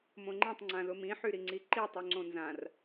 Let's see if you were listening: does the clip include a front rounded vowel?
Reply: yes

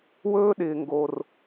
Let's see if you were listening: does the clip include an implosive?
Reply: yes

